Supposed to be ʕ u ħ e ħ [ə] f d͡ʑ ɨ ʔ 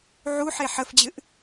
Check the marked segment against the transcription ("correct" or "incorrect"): correct